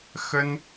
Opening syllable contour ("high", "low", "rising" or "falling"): high